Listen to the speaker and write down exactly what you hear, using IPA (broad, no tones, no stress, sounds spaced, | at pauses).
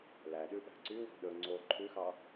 l æ ɗ ʉ ɓ æ̤ ǀ y w ɔ̤ ɗ ɵ ŋ͡ǀ o ǃʰ ʉ x ɑ